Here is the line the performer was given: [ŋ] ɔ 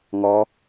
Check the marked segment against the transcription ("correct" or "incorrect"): correct